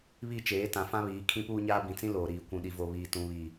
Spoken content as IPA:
β i˦˨ t͡ʃ eː˨˦ t ã˨ f ã˦ β iː˨˦ kʰ ĩ˦ p uː˦ ɲ aː˦ b ĩ˨ t͡s ĩ˦ l oː˨ ɾ iː˨ kʷ ũ˨ ɗ i˨ v o˨ β iː˨ t ũ˨ β i˨

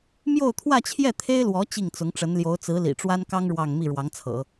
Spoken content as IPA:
m j o˥˧ ʊ̯ t̪ʰ w ä˥˧ t͡ɕʰ j ɛ˥˩ t̪ʰ e˥ ɪ̯ l w ɔ˧˥ t͡ɕ i˥˩ ŋ t͡s ʊ˧˥ ŋ ʈ͡ʂ ə˧˥ n l j o˧˥ ʊ̯ t͡s ɹ̩˧˥ l ḭ˨˩ ʈ͡ʂ w a˥ n k ɑ˥ ŋ ɻ w ɑ˥˧ ŋ m i˥˩ ɻ w ɑ˧˥ ŋ t͡sʰ ɤ̰˨˩˦

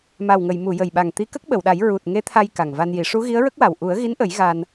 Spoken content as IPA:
m a˨˩ w ŋ ə˨˩˨ j m u˨˩˨ j ə˨˩ j ɓ a˨˩ ŋ t̪ i˧˥ k ə˦˥ k̚ ɓ ə˨˩˨ w ɗ a˨˩˦ j ɹ u˨˩ t̚ ŋ e˧˥ t̪ʰ a˧ j k a˨˩ ŋ v a˧ n j i˨˩˦ ʂ u˧˥ ɣ i˧˥ ə̯ ɹ ə˦˥ k̚ w a˨˩ w ʔ u˨˩˦ ə̯ ɣ i˧˥ n ʔ ə˨˩˦ j ɣ a˧ n

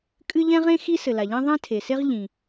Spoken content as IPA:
kʼ ɨ˥ ʎ ɛ̃˥ ʁ ẽ˥ x i˥ s ɘ˩ l a˩ ʎ ẽ˥ ðˤ ɛ̃˥ tʰ e˩ s e˥ ʁ ʎ ĩ˩

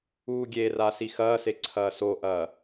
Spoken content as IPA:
uː ɡʲ e r a s i x ɐː s e ǀʰ ɐː s o ʔ ɐː

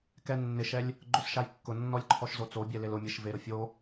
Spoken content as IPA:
k ɛ nː ɪ ʃ ɛ lʲ | ɡ͡ǃ o s ʃ a j kː ʊ nː ɔ lʲ ǃʰ ɔ ʃ z o t͡s o bʲ ɛ l e l ʊ mʲ e ʃ v e ɾ ʊ fʲ o

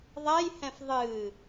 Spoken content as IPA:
ðˤ ɛ j h ɛ̃ f ðˤ ɨː

